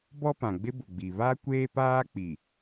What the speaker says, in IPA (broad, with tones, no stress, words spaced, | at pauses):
bɔ˦pã˨ɡ͡bɪ˦bʊ˨ ɡ͡bi˨ βa˦ kʷeː˦paː˦k͡pi˨